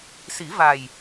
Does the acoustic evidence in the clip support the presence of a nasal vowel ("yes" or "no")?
no